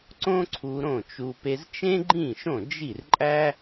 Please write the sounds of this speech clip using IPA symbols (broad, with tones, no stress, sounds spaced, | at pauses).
ǀ õ˥ ǀʰ u˧ ɾ õ˥˩ t͡ʃ u˧ p e˧ z t͡ʃ ẽ˥ ɡ͡ǃ ĩ˥˩ ʃ õ˥˩ d͡ʒ i˥˩ r ǃʼ æ˥